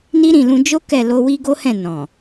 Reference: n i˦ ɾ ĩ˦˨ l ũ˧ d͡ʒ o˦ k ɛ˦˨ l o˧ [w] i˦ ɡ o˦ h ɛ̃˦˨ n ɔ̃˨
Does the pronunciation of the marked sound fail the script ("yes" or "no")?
no